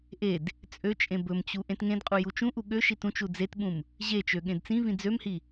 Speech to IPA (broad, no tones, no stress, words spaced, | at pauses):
ʔed | t͡sʼøt͡ʃʼẽ bɵmt͡ɕu ʔẽtŋẽdqʼu jut͡ʃũʔu ɠøʃit ũt͡ʃu d͡zetɓũm | ʑet͡ʃø ɠẽdt͡sĩvĩ d͡zømhi